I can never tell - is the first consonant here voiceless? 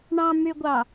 no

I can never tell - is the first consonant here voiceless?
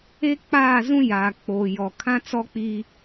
yes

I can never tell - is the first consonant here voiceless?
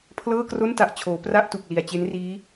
yes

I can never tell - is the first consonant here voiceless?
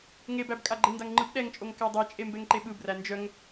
no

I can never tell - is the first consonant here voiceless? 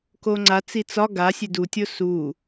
yes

